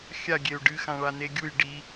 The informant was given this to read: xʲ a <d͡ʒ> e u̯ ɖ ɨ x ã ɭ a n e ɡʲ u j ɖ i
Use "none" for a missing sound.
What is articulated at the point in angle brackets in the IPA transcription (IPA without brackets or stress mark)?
ɡʲ